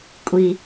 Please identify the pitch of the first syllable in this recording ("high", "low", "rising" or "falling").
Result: high